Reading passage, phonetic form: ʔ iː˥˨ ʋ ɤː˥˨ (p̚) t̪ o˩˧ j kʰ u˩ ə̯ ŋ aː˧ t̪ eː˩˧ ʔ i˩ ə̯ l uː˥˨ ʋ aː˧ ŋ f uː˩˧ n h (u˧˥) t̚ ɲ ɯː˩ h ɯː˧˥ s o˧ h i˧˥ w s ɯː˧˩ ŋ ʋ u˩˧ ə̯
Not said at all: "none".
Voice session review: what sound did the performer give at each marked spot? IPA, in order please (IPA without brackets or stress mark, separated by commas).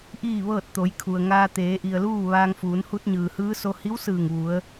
t̚, u˧˥